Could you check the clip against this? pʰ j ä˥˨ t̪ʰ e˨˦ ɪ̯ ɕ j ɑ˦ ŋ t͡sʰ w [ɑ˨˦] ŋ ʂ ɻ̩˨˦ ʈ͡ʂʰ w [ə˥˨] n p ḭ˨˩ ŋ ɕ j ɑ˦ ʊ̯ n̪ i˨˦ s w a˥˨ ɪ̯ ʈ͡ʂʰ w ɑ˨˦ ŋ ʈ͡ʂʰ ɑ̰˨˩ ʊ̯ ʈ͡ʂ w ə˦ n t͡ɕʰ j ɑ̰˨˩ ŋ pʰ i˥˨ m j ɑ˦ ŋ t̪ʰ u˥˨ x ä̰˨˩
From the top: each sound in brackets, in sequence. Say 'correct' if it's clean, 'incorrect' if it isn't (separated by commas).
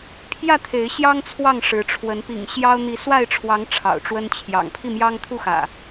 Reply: incorrect, incorrect